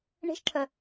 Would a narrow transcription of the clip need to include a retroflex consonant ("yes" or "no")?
yes